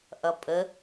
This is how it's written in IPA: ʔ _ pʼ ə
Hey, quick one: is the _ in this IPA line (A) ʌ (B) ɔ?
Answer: A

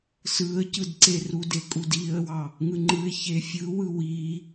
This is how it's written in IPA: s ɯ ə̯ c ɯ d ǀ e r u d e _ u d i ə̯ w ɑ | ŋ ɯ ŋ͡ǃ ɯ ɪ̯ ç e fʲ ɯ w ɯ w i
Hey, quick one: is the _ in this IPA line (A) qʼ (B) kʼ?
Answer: B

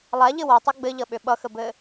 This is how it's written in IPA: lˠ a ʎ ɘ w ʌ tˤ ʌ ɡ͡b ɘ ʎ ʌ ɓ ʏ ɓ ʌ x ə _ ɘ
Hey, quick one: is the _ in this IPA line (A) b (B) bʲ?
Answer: A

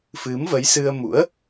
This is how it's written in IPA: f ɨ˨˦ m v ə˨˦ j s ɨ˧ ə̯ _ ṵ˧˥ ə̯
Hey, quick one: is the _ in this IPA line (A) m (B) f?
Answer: A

